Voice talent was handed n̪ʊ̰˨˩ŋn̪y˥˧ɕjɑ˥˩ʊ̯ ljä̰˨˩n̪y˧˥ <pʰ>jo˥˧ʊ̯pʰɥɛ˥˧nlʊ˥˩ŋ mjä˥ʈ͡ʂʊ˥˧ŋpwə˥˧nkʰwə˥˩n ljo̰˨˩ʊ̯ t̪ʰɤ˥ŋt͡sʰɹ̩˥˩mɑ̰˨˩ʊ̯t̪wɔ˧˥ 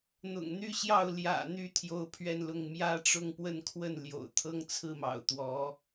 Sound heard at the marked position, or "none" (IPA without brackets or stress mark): t̪ʰ